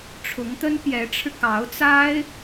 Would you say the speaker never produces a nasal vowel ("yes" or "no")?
yes